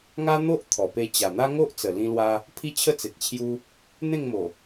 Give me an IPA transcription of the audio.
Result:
ŋa˦n̪o˦ʔ t̪ʰɔ˨˩ pe˧t͡ɕa˨˩n̪a˦ ŋo˦ʔt͡sə˨˩ lĩ˧lwa˧ | pʰi˦t͡ɕʰə˦t͡se˨t̚ t͡ɕʰju˦ | n̪ẽ˥˧ŋmo˨˩

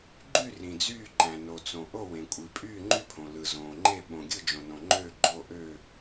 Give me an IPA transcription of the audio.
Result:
ɡ͡ǃy˥˨ rĩ˩d͡zyː˥˨ǃæ̃˩ no˩t͡sõ˩ ʔo˥˨wẽ˩kʷʼi˩ pʼyː˥˨ŋ͡ǃy˥˨pʰõ˩ lɯ˩zõː˩ŋ͡ǃe˥˨ ɓõ˩ɡʲɯ˥˨d͡ʒõ˩nõ˩ ŋ͡ǃøː˥˨ɡ͡ǃo˥˨ ʔø˥˨

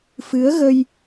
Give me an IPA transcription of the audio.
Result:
fɨ˨˦ə̯ɣə˧j

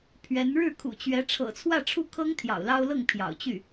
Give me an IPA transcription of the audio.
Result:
pʰɥɛ˧˥n ɻɻ̩˥˩kʰṵ˨˩t͡ɕɥɛ˧˥ ʈ͡ʂʰɤ̰˨˩t͡sʰwä˥˧ʈ͡ʂʰu˥˩ kʰɤ˥ŋ t̪ʰjɑ̰˨˩ʊ̯lɑ˥ʊ̯lɤ˥˩ŋ pʰjɑ̰˨˩ʊ̯t͡ɕy˥˩

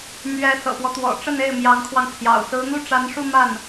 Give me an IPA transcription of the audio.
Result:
mɥɛ˧˥ sɤ̰˨˩pwɔ˦t̪wɔ̰˨˩ ʈ͡ʂə˥˧ne˥˩ɪ̯ mjɑ˧˥ŋkʰwɑ˧ŋpʰjɑ̰˨˩ʊ̯ sɹ̩˧˥n̪u˥˩ʈ͡ʂa˧˥nʂu˥˧ ma˥˩n

